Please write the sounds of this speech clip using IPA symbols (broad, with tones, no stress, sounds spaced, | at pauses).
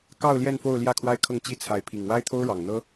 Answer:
k ɑ˥˧ ʊ̯ l j ɛ˥˧ n f o˥˧ ʊ̯ l j ä˥˩ kʰ w a˥ ɪ̯ kʰ ɤ˥˧ ŋ t͡ɕ i˥˩ t͡sʰ a˧˥ ɪ̯ pʰ i˨˩ ŋ w a˥ ɪ̯ t̪ʰ o˥ ʊ̯ ɻ ɑ˨˩ ŋ n̪ ɤ˥